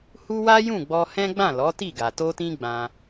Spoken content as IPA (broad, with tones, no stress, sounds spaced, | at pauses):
h u˦ w a˦ j ũ˦˨ ɡ͡b ɔ˧ h ɛ̃˦ ɡ͡b ã˦˨ l ɔ˨˦ t i˦˨ ɡ a˨ t o˧ t ĩ˧ ɡ͡b ã˧